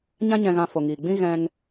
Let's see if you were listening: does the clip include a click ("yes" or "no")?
no